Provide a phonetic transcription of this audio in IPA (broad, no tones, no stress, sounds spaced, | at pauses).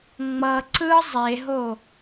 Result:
ŋ͡m ʌ ǀ ɯ zˤ e ɦ o